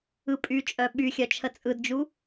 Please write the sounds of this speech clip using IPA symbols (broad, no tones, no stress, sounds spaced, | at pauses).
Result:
ɯ pʼ y t͡ʃʼ œ ɓ y xʲ œ t͡ʃʰ ə t͡sʼ ɯ d d͡ʒ u